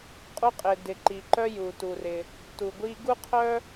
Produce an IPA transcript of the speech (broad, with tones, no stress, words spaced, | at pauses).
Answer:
qʼu˧qʼɪ˩dɪ˩ ǃi˩ǃœ˧ ju˩tu˩ rɪ˩ | tu˩ɡʷi˧ ɡu˥qʰœ˥